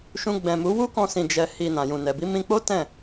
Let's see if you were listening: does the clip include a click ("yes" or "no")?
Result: no